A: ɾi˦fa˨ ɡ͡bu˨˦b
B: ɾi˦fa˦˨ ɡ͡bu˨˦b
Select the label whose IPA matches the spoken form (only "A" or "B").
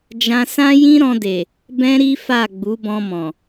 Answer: B